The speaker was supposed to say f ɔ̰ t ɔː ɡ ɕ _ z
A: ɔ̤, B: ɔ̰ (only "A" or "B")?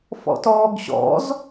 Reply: B